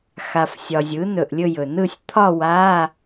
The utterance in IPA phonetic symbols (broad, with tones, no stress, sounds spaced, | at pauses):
x a˨ f sʲ ɒ˨ zʲ ɯ˩˥ n ɵ˨ ʔ lʲ ɵ˥˧ j ɵ˨ n ɯ˥˩ sʲ t̪ʰ ɒ˥˧ w a˧˥˧